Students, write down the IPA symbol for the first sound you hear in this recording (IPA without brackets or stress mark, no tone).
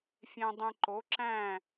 fʲ